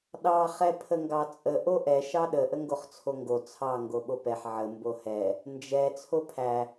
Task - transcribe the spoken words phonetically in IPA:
ɗɑ χɛpʰəŋɡɑt͡sʼə ʔoʔɛ ʃɑɗə ʔəŋɡoχt͡sʰoŋɡo t͡sʰɑ ŋɡoɓopɛħ ʕə mbohɛ | nd͡ʒɛ t͡sʰopʰæ

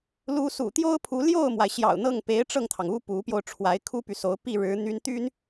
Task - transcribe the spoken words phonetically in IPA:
lu˧˥sṵ˨˩t̪jo˥ʊ̯pʰu˧˥ ljo˥˩ʊ̯mwa˩ɪ̯ ɕjɑ̰˨˩ʊ̯n̪ɤ˥˩ŋ pe˧˥ɪ̯ ʈ͡ʂɤ˥˩ŋt̪ʰɑ˩ŋu˥ pu˧˥pjo˧ʊ̯ ʈ͡ʂʰwa˧˥ɪ̯kʰu˥py˨so˧˥ʊ̯ pi˥˩ ɻɻ̩˧˥ n̪y˥n t̪y˥n

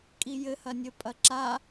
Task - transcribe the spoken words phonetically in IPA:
kʼijɘ hɐnʲɘpʼɐǁa

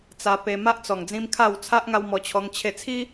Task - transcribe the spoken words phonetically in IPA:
t͡sa˧pe˧ma˦ʔ t͡sɔ˨˩ŋd͡zĩ˧m kʰa˥˧w t͡sʰa˦ʔ ŋa˧wmɔ˧t͡ɕʰɔ˧ŋ t͡ɕʰe˥˧ t͡sʰi˦

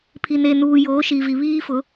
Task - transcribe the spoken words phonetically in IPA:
pʰi˨ne˨nuː˨ joː˨˦ʃi˨vi˨ βiː˦fʊ˨˦

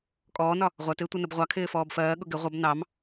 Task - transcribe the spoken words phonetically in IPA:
kʼɔːnɒ | ʁʷɜtɪː tʷʌnəbʁʷɑkʰɪː fɔːbfɜːɠʊ ɡɪ ʁʷʌb nɑm

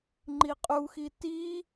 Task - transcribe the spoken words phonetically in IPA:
ŋ͡ǃiqʼuxi ti

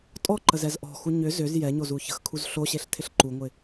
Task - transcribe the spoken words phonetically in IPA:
tʼɔǃəzɛz ʔɔ̤xu ɲʏ zʏz jɛɲozu çə̤xkʰuz ɬoɕeɬtʰɪɬ ǃuŋʷɪ

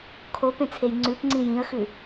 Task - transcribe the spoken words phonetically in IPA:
kʰopẽt͡sʰej ŋ͡ǀʉpŋ͡ǀĩ jĩə̯xʉ

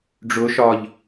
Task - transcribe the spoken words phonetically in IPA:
ɖ͡ʐʊ ʃɒʎ

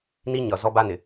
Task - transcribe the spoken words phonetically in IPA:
ni˦ɲʌ˨ zɔ˦ba˦nɪ˨

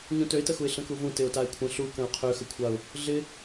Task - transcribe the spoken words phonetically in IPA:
ɲũtøɪ̯təxuɪ̯ ɬə̃kuvũ tɪʊ̯taɪ̯kʷʰə̃ ɬu kə̃ʊ̯qʰøxəkʷʰaʊ̯ | ɮɪ

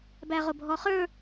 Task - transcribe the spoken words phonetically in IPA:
bæʁʊbʱɔχə˞

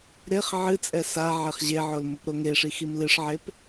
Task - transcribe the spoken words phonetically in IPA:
ɾeχ ʕɨt͡sʼɛ sa ʕeχʑeʕol mʊpɾoŋeʂi ximlɨʂʕep

